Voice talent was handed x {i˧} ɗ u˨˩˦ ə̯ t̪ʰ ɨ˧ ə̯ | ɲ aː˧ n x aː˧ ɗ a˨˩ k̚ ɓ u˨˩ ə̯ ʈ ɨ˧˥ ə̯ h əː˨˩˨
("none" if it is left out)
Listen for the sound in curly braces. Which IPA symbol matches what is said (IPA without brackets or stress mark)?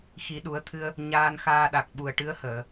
i˨˩˦